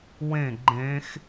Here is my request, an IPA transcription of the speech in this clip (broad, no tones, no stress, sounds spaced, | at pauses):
w ẽ ɡ͡ǃ ẽ x